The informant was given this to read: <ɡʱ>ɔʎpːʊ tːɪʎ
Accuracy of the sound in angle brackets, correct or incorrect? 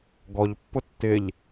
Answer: incorrect